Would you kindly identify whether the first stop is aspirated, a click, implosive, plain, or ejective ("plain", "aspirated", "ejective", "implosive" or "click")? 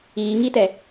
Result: plain